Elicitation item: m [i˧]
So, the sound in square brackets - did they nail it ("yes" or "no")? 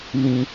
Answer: no